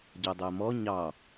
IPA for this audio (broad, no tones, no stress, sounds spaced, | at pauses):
ɟ ɜ dˤ ɜ m ɔ ɲ ɑ